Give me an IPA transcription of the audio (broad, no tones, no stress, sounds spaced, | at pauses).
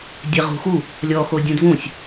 dʲ ɛ ʁ ṳ x u | lʲ ɔ x o dʲ ũ d v ũ sʲ